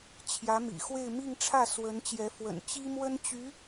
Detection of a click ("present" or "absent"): absent